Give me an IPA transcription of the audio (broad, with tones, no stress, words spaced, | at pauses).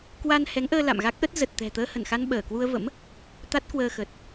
kwa˧nhɛ˨˦ŋʔəː˧ la̰˧˨mɣa˦˥k̚ʔə˦˥t̚ zə˨˩t̚t̪ɛ̤˨˩ t̪əː˧hə˧˩nxa˧n ɓəː˧˩kwu˧ə̯və̰˧˥m | t̪a˦˥t̚kwəː˧xə˨˩t̚